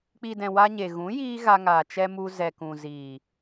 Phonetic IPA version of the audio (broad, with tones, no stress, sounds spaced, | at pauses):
k͡p i˨ d ɛ̃˨ w a˧ ɲ e˨ ɣ ũ˨˦ j iː˦ ɣ a˧ ŋ aː˨ t͡ʃ ɛ˧ m u˧ z ɛ˨ k ũ˨ z iː˨